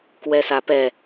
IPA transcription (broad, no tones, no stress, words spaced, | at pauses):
kwɛsapɛ